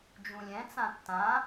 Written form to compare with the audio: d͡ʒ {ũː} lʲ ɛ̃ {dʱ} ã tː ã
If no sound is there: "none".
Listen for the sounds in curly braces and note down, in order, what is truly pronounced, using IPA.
ũ, t͡s

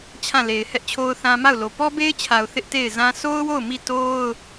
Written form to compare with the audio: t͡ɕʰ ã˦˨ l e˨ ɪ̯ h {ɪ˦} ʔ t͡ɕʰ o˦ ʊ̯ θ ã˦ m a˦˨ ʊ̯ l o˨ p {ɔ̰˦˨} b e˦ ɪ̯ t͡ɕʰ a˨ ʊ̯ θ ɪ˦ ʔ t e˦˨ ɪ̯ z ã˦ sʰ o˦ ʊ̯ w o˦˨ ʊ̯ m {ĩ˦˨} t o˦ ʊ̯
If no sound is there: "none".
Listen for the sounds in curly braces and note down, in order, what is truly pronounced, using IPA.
ɛ˦, ɔ˦, i˦˨

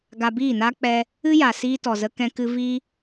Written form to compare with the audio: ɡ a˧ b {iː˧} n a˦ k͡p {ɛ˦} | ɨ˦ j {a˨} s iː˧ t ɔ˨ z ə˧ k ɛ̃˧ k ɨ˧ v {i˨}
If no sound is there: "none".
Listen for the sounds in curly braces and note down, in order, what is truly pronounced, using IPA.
iː˦˨, ɛ˧, a˨, i˧

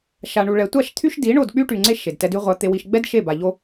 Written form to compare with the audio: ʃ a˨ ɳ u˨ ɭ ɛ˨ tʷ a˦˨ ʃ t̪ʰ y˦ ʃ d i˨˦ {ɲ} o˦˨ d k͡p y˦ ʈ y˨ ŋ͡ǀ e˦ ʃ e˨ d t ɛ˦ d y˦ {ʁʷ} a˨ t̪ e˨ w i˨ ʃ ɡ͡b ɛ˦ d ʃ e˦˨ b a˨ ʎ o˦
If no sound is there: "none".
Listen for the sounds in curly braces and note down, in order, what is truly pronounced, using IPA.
ɳ, ʁʷ

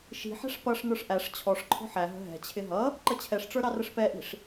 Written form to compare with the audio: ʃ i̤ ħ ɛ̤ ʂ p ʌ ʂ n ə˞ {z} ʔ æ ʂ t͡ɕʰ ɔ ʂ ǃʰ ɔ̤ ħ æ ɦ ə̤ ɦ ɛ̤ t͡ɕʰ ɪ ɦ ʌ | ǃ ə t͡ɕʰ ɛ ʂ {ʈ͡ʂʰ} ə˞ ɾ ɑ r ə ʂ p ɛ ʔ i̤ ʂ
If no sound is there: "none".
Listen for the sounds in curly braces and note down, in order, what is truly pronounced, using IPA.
ʂ, ʈ͡ʂ

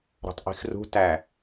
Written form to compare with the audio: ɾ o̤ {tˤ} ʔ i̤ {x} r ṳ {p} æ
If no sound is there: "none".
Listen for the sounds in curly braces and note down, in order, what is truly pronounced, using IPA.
tˤ, x, t

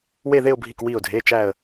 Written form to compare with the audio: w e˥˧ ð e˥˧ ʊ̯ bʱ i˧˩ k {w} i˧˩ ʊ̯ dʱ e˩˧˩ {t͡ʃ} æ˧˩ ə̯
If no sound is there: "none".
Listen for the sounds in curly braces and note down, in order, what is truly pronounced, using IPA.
w, t͡ʃ

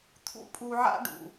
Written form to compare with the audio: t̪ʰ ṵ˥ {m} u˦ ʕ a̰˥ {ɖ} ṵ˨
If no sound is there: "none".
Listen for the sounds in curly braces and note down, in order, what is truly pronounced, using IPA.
pʼ, ɖ

